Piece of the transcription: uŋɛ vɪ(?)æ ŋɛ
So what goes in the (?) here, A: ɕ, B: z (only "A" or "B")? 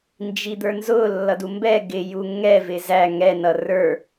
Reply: B